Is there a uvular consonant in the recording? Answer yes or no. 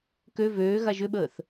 no